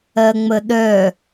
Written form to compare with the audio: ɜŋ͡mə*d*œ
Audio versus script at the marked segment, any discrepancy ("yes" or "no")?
yes